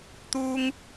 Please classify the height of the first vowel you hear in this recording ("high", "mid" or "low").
high